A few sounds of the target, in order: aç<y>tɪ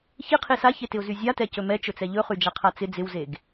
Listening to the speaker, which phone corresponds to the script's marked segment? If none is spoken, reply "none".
e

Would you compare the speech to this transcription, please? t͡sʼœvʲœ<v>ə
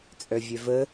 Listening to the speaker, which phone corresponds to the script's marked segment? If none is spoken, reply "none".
v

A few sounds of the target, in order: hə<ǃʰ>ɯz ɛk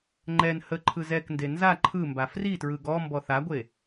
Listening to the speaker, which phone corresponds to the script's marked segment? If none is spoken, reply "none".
ǃʰ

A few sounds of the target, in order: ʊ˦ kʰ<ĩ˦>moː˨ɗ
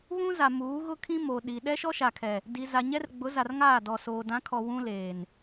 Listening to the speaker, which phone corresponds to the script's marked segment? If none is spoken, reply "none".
ĩ˦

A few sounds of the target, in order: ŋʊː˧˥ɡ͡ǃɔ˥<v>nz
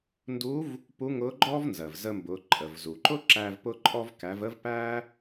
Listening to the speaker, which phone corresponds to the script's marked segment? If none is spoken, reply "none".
v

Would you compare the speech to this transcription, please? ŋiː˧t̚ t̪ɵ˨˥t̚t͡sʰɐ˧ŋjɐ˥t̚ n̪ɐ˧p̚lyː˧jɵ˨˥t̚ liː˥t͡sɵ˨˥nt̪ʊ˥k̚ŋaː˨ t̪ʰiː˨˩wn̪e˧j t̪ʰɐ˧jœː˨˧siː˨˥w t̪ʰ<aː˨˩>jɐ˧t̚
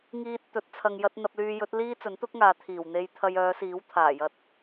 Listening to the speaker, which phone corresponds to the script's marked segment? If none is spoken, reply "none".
aː˨˩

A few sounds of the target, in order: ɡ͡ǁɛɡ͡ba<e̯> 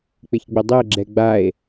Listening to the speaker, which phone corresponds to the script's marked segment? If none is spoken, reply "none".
e̯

